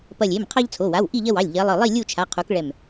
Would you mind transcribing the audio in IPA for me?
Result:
p ɐ˧˩ lʲ e˩˧˩ m qʰ ɑ˦ ʎ t͡sʰ o˩˧˩ w a˩˧˩ w ʔ i˥˨ ʎ ɐ˦ w ɑ˩˧˩ lʲ ʎ ɐ˨˦ lˠ ɯ˧˩ lˠ i˥˨ lʲ u˥˨ t͡ʃʰ a˩˧˩ qʰ u˨˦ k ɭ ɛ˧˩ m

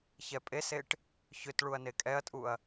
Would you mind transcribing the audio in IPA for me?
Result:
ç ɛ pʼ e s e ʈ | ç ʏ t ɭ u ɐ̯ n e kʼ ɛ ɐ̯ tʼ u ɐ̯

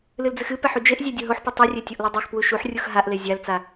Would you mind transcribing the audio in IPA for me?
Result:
l ɨ l d͡z ɨ x ɨ p ɛ ħ u d͡ʒ e ʔ zʲ ɛ dʲ o ɦ o ħ p u tˤ ɨ rʲ e tʲ o ʔ l o dˤ e x p w u ʃ u ħ rʲ u x ɦ a ʔ l e zʲ a l t͡s a

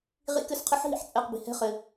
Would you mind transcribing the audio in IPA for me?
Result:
ʁ ḭ˦˥ k ɘ˦˥ s qʰ ɘ˦˥ ħ ɦ ḭ˦˥ ħ t͡sʼ ɛ˧˥˧ q b i̤˦˨ h ɛ̤˦˥ χ ɘ˨˦

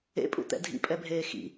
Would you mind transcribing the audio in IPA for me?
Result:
ḛ pʼ ṵ t̪ ɛ̰ dʱ ḭ pʼ ɛ bʱ eː x ḭ

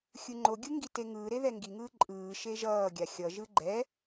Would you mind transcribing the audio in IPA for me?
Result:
xʲ ɯ ŋ͡ǃ o ɡʲ ɯ ŋ ɡ i t e ŋ ɯː ɾ e ð ɛ ŋ ɡ i ŋ ɯː ǃʼ ɯː ʃ e ʒ ʌː ɡʲ a xʲ ʌ ʒ ɯ ɡ͡ǃ ɛ

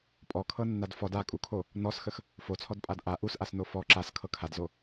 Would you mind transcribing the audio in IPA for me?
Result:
pʼ ɔ kʰ ɤ nː a d f ɔ d a kʼ u kʰ o | n ɔ s x ə x | f o t͡sʰ ɔ d pʼ a d ʔ a ʔ u s ʔ a s n o f ɔ ǁ a s kʰ ɤ kʰ a d z o

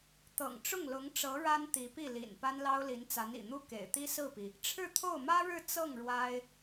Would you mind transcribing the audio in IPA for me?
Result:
t̪ ɤ̰˨˩ ŋ ʈ͡ʂ ʊ˥˩ ŋ l ʊ˧˥ ŋ ʈ͡ʂ ɤ˧˥ ɻ a˥ n t̪ i˧˥ p i˥˩ l ḭ˨˩ n p a˥ n l ɑ˥ ʊ̯ l i˧˥ n t͡s a˧˥ n ḭ˨˩ n̪ u˥ k ḛ˨˩ ɪ̯ t̪ i˥ s ɹ̩˥˩ p i˩ | ʈ͡ʂʰ ɻ̩˥˧ t̪ʰ o˥˩ ʊ̯ m ä˥ ɻ ɻ̩˥˧ t͡s ɤ˥˩ ŋ ɻ w a˥ ɪ̯

